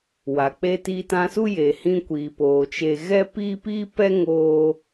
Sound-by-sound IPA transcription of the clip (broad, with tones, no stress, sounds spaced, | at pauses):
w a˨ k͡p e˧ t iː˧ t ã˧ s u˦ j e˨ h ĩ˧ kʷ iː˨ p oː˨ t͡ʃ e˧ ɣ ɛ˦ p iː˦ p iː˦ p ɛ˦ ŋ oː˦